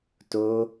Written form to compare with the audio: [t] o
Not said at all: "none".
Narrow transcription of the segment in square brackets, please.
t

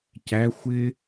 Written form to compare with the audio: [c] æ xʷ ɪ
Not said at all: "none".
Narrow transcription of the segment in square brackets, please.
c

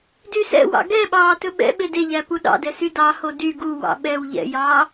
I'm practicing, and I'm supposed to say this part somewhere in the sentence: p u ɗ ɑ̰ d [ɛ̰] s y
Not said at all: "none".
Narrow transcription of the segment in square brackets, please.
ɛ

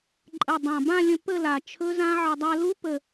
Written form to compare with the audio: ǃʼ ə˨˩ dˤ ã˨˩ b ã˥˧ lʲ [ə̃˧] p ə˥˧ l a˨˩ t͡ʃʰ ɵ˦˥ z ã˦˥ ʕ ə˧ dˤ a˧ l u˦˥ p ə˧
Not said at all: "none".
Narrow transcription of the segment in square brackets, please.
ə̃˧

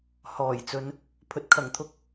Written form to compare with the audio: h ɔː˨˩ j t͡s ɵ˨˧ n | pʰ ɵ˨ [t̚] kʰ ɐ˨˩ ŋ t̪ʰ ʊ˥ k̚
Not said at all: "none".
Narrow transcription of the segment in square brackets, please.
t̚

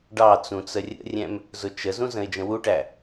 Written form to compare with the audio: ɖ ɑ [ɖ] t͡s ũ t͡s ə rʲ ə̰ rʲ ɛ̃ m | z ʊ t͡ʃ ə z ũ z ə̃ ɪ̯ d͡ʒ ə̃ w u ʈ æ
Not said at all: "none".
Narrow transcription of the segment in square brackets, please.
none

